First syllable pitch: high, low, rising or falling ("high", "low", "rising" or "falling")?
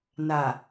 low